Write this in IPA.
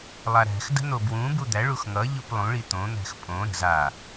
lˠaɾæ̤xdə̤ n̪obwũbu d̪æɭux ŋʌʎup lˠũɭi t̪õn̪æ̤x pʼõ ɾə̤ za

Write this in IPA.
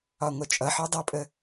ɒŋʷɜt͡ʃʼʌħɒ dˤʌpʼə

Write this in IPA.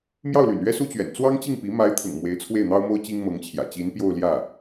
mjɑ˥˩ʊ̯ly̰˨˩nɥɛ˥ su˥t͡ɕɥɛ̰˨˩n t͡swɑ˥ŋt͡ɕi˥˩ŋpi˧˥ ma˧˥ɪ̯t̪ʰʊ̰˨˩ŋ mwe˧˥ɪ̯t͡sʰwe˥˩ɪ̯n̪ɑ˥ʊ̯mo˥ʊ̯ t͡ɕi˥ŋmɤ˧˥ŋt͡ɕʰjä̰˨˩ t͡ɕi˧˥npjo˥˧ʊ̯ ljä˥˩

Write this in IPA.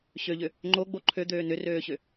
ɕøʎʏ | ŋ͡ǃoɡ͡bo ǃʰød̪øː nʏrøːɕʏ

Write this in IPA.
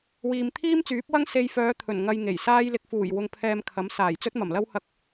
wiː˨mt̪ʰiː˥mt͡syː˨˥p̚wɐ˥ŋ se˧jfœː˨˧ t̪ʰɵ˨˩n ŋɐ˧jŋe˨˩j saː˧jlɪ˨k̚fuː˨˩j wʊ˧ŋpʰɛː˧mkʰɐ˨˥m saː˨˩jt͡sɵ˥t̚mɐ˨˩mlɐ˥w hɐ˧k̚

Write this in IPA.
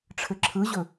ʈ͡ʂʰɘǁʰɯʑɵ

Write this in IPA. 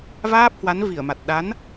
vaː˦˥p̚hwa˨˦n vi˧˩ə̯ma˨˩t̚ ɗa˨˦n

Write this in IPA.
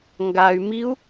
ŋɡay̯ miu̯

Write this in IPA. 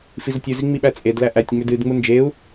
fizətʲuzi ŋ͡miɓæt͡sʼedlæ ʔætʲ ŋ͡mʏdɨdŋ͡mu nd͡ʒeu̯

